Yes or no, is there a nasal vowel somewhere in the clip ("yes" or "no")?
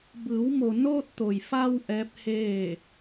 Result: no